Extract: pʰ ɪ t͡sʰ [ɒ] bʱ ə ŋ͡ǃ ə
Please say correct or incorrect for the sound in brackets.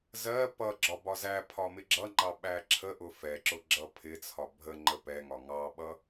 correct